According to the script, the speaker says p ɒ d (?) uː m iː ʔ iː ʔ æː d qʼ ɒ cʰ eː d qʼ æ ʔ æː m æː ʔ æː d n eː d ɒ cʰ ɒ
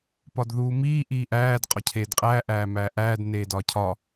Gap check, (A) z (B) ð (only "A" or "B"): B